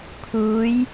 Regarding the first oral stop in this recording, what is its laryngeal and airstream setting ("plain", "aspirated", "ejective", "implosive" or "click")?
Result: aspirated